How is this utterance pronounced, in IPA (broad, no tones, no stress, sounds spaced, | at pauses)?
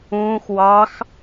ũː x w ɑ x